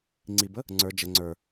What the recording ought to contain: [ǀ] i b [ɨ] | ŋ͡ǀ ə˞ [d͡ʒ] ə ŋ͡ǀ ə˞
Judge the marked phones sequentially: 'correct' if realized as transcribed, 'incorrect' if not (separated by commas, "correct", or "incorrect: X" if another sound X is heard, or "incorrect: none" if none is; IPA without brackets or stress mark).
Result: incorrect: ŋ͡ǀ, incorrect: ə, correct